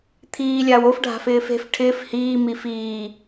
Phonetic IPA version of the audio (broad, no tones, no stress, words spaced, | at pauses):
t̪ʰiː lʲaːwof ɖʱa̤fɪːfe̤f ʈʰɪːf hiː mifiː